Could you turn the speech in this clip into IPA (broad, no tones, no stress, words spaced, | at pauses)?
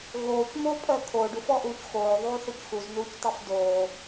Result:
ɣoːcmoːpʼœ kʰoːɖufɔʔuːc xoːðˤuːθʏc xuznuːctˤof doː